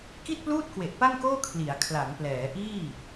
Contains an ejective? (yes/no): no